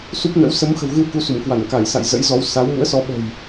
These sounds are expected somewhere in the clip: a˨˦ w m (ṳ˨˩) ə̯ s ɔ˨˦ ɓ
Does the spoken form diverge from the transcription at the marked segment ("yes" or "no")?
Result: yes